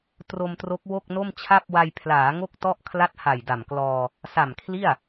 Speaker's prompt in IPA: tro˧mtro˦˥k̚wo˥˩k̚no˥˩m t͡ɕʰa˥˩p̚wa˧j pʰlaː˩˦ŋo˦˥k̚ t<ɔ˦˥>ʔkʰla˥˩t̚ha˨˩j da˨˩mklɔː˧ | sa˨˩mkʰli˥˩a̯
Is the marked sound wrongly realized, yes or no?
yes